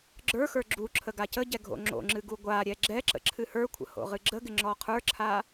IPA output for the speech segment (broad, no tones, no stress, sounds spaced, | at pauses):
ɡ͡ǁ ə˞ x ə˞ ɡ͡ǁ u ǁʰ ə ɡ a c ə ɟ ɛ ɡʱ o̰ ŋ͡ǁ o̰ ŋ͡ǁ ɨ ɡ u ɡʷ a ɾʲ ɛ ɡ͡ǁ ɛ ǁ ə̰ ǁʰ ɨ h ə˞ kʷʰ ə̰ h o̰ ʁ ɨ ɡ͡ǁ ə ɡ ɪ ŋ͡ǁ ɔ qʰ ə˞ ǁʰ a